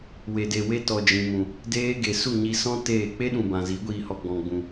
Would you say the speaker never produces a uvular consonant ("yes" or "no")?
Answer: yes